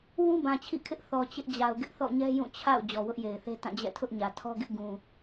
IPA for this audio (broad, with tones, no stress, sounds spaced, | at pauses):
w ũ˦ b ã˨ t͡ɕʰ ḭ˦˨ kʰ ɪ˦ ʔ θ ɔ˨ t͡ɕ ɪ˦ ʔ d͡ʑ a˨ ʊ̯ ɡ ɪ˦ ʔ θ ɔ̰˦˨ ɲ ɛ˦ j ũ˦˨ t͡ɕʰ a̰˦˨ ʊ̯ d͡ʑ ɔ˨ w ʊ˦ ʔ j e˨ ɪ̯ θ e˦ t ã˦˨ d͡ʑ ɛ̰˦˨ tʰ ʊ˦ ʔ ɲ ä˨ tʰ ɔ˦ ɡ ɪ˦ ʔ ɡ ũ˨